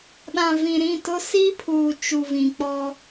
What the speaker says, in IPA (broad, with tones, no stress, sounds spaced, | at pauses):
ɗ ã˨ v ĩ˨ ɾ ĩ˦˨ t ʊ˦ s i˦ pʰ uː˨ t͡ʃ u˨ v ĩ˨ k͡p ɔ˦